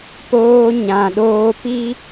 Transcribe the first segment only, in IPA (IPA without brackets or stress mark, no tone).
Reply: p